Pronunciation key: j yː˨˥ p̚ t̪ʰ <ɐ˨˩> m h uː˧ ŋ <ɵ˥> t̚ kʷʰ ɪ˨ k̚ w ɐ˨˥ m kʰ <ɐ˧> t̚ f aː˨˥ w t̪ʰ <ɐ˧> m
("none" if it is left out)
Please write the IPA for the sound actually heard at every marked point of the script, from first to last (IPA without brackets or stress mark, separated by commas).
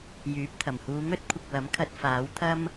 ɐ˨˩, ɵ˥, ɐ˧, ɐ˥